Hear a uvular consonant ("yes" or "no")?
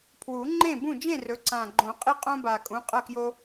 yes